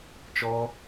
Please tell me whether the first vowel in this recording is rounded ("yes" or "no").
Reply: yes